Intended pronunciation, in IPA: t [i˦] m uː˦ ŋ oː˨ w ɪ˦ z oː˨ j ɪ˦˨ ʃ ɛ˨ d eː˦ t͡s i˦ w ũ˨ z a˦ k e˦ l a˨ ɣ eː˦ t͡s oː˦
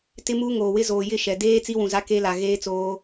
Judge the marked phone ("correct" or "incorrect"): incorrect